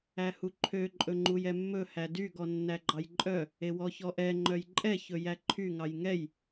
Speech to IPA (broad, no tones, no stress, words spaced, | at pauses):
æhuǃʰø ǃʼɵŋ͡ǃujɛmːɵ hædy ɡɔnːæɡ͡ǃɑjǃʼœ | ewɔçɔʔɛ ŋ͡ǃœjǃʼɛ çɵjæǃʰy ŋɑjŋɛj